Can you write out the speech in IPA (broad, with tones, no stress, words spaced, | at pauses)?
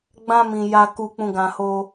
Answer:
ɡ͡bã˧mĩ˨ ja˨ku˨k͡pũ˨ɡã˨ ho˧